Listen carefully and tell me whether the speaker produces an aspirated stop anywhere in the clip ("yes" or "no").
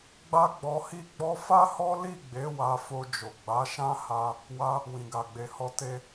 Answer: no